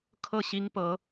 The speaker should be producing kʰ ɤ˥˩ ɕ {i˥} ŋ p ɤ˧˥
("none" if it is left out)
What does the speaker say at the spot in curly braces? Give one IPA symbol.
i˥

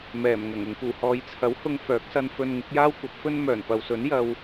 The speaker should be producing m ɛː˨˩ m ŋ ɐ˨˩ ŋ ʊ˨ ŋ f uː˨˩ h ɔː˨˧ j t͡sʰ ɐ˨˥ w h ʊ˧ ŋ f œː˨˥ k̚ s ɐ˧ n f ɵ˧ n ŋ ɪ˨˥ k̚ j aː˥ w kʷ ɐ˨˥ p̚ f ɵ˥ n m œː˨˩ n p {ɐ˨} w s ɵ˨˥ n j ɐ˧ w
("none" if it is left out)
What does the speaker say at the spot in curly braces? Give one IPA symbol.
ɐ˨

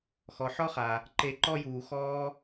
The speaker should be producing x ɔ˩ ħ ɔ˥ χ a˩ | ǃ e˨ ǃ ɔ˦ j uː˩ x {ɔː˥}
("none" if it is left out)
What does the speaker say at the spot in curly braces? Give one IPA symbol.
ɔː˥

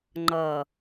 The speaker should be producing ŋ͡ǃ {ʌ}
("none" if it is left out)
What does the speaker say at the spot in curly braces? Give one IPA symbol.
ʌ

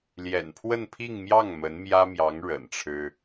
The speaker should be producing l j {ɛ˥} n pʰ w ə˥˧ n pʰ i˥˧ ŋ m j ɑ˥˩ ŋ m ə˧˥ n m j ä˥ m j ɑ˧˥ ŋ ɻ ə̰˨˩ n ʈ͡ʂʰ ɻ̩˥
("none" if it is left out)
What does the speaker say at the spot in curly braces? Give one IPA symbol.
ɛ̰˨˩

